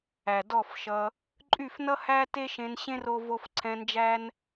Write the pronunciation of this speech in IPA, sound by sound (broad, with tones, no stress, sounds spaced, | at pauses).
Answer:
æ˨ d ɔ˦˨ f ʃ ʌ˧ | ǃʼ y˦˨ f n ʌ˦ h æ˦ t e˦ ʃ ẽ˧ n ɕ ẽ˦ r o˦ v o˦ f ǀʰ ɛ̃˧ n d͡ʒ æ˦ n